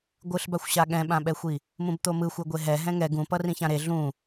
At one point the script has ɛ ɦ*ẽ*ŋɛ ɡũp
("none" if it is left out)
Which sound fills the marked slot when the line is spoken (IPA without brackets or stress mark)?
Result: ɛ̃